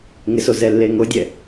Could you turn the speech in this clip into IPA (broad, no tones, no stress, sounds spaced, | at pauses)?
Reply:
ŋ ɪ s o z ɛ lː e ŋ o dʲ ɛ